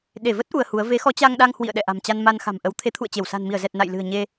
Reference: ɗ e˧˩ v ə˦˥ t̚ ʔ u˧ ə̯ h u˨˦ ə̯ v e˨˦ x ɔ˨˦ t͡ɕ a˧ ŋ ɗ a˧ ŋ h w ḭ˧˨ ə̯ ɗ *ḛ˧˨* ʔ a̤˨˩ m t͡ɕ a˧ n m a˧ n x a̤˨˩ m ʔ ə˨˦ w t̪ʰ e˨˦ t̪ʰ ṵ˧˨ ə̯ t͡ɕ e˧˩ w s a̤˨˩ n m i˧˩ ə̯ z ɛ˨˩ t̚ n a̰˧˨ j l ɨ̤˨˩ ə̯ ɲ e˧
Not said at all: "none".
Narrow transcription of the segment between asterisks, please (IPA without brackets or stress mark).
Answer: ɛ̰˧˨